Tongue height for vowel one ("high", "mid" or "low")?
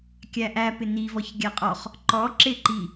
low